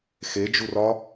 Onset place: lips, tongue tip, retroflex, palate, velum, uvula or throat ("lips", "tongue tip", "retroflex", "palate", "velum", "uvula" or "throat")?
velum